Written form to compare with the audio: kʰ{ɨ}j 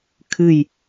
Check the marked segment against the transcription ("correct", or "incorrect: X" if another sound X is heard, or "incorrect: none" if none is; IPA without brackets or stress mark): correct